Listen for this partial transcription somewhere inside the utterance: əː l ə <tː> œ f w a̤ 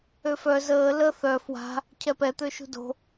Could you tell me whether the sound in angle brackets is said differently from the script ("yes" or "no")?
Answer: yes